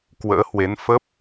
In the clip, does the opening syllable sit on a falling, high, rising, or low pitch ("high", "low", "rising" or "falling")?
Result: rising